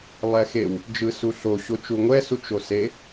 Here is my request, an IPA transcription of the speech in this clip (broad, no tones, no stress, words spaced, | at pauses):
lˠɛxew | d͡ʒɯsuɬo ɕot͡ʃuŋʷɛ sut͡ʃose